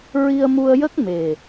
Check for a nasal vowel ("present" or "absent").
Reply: absent